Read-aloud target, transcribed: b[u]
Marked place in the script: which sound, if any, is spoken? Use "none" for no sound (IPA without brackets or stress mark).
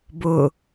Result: ʊ